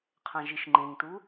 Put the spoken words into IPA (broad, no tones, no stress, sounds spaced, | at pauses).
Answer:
qʰ ã ʒ i ʃ ŋ͡ǃ ẽ ŋ t u